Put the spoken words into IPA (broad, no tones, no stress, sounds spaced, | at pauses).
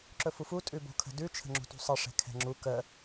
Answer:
ǁ ɵ f u f u tʼ ʉ b o̤ kʰ ə̤ d ʉ t͡ʃʰ ə̤ ŋ͡ǁ ṳ t ṳ sˤ ə ʂ ɛ̤ kʰ ɛ̤ ŋ͡ǁ u k ə